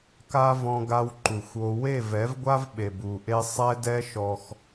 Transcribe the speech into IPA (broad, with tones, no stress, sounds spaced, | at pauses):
k a˦ v ɔ̃˧ ɡ a˧ w ǃ u˨ xʷ o˧ w e˦˨ v ɛ˨˦ v ɡʷ a˦ v ɓ e˨ b u˨ ʔ e˦ sˤ ɛ˦ d ɛ˦ ʃ ɔ˧ x